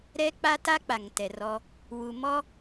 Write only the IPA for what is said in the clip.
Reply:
ɾɛ˦k͡pa˦ ta˦ k͡pa˨ŋtɛ˨rɔ˦ | wu˨mɔ˦

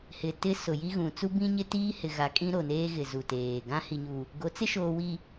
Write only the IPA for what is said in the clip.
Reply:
hɪ˨tɪ˦ sʊ˨ji˦ɣũ˨ t͡su˦bĩ˦ɲɪ˦ tiː˦hɪ˨ɣa˨ kʼĩ˦ɾo˨neː˦ ɣɪ˨zu˨teː˨ ɡã˦hi˨ɲu˨ | ɡo˨˦t͡sɪ˦ʃoː˨wi˨

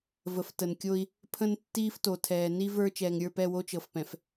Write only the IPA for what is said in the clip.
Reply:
və˨f tə˨nkʲo˦i̯ | pʰə̃˦n tːiː˦fto˨ tʰɛː˨ni˦ və˞˦ t͡ʃɛː˨ŋɾʲə˞˦˨pɛ˦˨wo˦ t͡ʃɤ˨fpɛ̃˨f

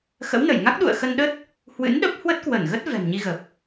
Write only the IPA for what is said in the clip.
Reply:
xə̰˧˥wnə˧˩jŋa˦˥k̚ ɗṵ˧˨ə̯xə˧nɗə˦˥t̚ | hwɨ̰˧˥nɗə˦˥p̚ hwə˦˥t̚kwə˧˩nɣə˦˥t̚ vɛ̤˨˩mɲi˧ɣə˨˩p̚

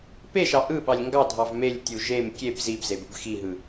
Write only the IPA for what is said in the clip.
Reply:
peʃɑ ʔɯ ɓɑlʲŋɡɑdʱɑv melʲtʲu ʒem kʲeb zibzeb ɯbxiɦɯ

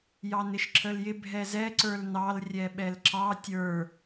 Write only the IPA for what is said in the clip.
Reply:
jɑnɪʃǁəljɪ bʱɛzɛ ǀə˞lnɑl rʲɛɓɛlǁɑ tʲə˞

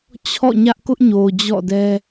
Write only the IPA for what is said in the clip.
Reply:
t͡ɕʰɔ̰˦˨ɲä˦ʔ kʊ˦ʔɲo˨ d͡ʑɔ̰˦˨dɛ˦

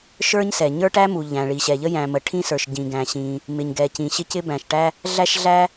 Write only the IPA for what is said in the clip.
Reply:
ʃə˞˥ɲ sɛ˩ɲə˞˥ʈæ˥mu˩ ʎæ̃˩ɭi˩ɕɛ˩ʎə˥ jæ̃˩ mə˩ʈʰĩ˥sə˞˩ʃ ɟĩ˩ɡæ̃˩ɕĩ˩ | mɪ˩ɲ ɡɛ˩cĩ˩ ɕɪ˥cɪ˥bæ̃˩ʃʈæ˥ | ɮæ˥ʃɮæ˥

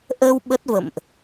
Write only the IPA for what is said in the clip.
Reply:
ʔə˧w ɓə˦˥t̚və̰˧˨mʔ

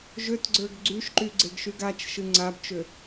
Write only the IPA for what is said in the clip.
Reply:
ʒøtɡ͡ǀə˞ɡ ɡ͡ǀyʃǃy ɡ͡ǀeɡʃyɡat͡ʃʃɨ ŋ͡ǀabt͡ʃø

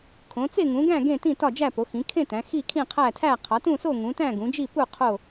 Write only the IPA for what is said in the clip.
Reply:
kʰõ˨˦t͡se˥˧ŋũ˨˦ɡæ̃˥˧ ɡẽ˥˧tĩ˥˧ tɒ˥˧d͡ʒæ˥˧po˨˦ xĩ˨˦kʰẽ˥˧ tæ̃˨˦ xi˥˧kʰĩ˥˧qʰæ˥˧tʰæ˥˧ qʰɒ˨˦tũ˥˧so˥˧ ŋũ˨˦tæ̃˥˧ ɡũ˨˦d͡ʒi˥˧ pu˥˧ qʰo˥˧

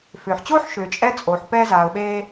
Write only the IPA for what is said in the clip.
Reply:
fʏː˩ħt͡ɕoː˥ħ ʃʏː˩t͡ʃʼɛ˥t͡sʼoː˩ħ pɛː˧zaː˩ʊ̯ɓeː˧

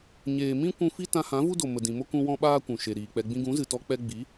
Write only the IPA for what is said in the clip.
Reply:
ɲeː˨mĩ˦ kʷũ˦ fi˦ tã˧hã˨˦vu˦do˨ mə˨dĩ˨mo˦ kũ˦wɔ̃˦ɓaː˦kʷũ˨ ʃe˨ɾiː˨k͡pɛ˧ ɡ͡bĩ˧ɡũ˨˦zɨ˨tɔ˧ k͡pɛ˧ɡ͡bi˨˦

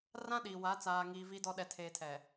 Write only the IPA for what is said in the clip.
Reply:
rã˦ɗiː˨wa˨˦ t͡saː˨ŋiː˨ vi˨dɔ˨ ɗɛ˨tʰeː˨tʰɛ˨

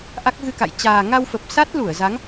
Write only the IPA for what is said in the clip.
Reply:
ʔa˦˥k̚ɣɨ˧ka̰˧˨j t͡ɕaː˨˩ ŋa˧wfə˨˩p̚ sa˦˥t̚ lu˧˩ə̯za˨˦ŋ

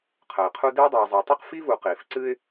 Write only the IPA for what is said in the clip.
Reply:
qʰə˩ɪ̯qʰu˦ dɨː˥dˤɛː˨ zˤɛ˨tˤi˥q fi˥vu˨qiː˩f ǀɨ˦ɪ̯

